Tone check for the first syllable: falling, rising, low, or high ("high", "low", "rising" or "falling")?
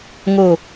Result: low